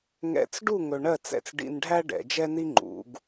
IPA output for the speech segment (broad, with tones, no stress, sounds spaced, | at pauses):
ŋ ɛ̰˧˩ t͡s ɖ u˥˧ ŋ ɵ˧ ɳ ɜ˥˧ t͡s ɛ̰˧ t͡s ɖ ḭ˧ n ɖʱ æ˥ ɖ ɛ̰˩˧ d͡ʒ ɛ˥ n i˥ ŋ͡ǃ ṵ˩˧ ɡ